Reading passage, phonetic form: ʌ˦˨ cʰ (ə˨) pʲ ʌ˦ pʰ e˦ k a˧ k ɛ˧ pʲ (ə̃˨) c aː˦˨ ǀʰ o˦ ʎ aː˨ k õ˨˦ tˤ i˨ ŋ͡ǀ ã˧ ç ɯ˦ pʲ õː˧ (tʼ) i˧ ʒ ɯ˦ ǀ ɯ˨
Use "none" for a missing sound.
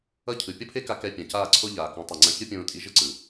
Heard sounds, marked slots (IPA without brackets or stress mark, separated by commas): ɯ˨, ã˨, tʼ